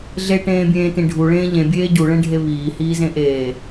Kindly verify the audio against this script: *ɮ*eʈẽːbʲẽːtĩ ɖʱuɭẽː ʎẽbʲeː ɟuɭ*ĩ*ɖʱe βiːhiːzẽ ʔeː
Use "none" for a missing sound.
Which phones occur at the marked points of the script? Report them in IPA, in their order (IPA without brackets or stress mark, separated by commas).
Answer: ɮ, ẽ